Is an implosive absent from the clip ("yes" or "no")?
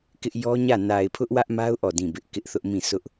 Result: yes